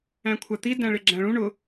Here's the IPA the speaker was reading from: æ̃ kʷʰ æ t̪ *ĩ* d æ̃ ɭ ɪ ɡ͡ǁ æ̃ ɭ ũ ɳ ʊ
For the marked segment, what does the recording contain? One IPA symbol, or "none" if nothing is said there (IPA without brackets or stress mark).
i